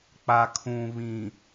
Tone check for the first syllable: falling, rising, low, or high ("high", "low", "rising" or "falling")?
low